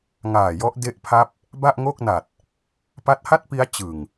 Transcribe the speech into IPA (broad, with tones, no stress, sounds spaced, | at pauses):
ŋ aː˨˩ j ɔ˦˥ ʔ d e˦˥ ʔ pʰ a˦˥ p̚ | b a˥˩ ʔ ŋ o˥˩ k̚ n a˨˩ t̚ | p a˦˥ t̚ h a˥˩ t̚ p i˦˥ a̯ t͡ɕ ɯ˨˩ ŋ